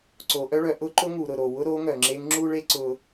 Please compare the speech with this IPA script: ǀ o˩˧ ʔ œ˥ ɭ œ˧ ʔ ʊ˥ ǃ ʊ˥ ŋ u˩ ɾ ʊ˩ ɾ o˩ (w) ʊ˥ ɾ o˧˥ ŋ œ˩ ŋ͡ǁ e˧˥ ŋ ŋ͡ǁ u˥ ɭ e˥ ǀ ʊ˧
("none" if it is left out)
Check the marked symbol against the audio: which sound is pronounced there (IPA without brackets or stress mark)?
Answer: w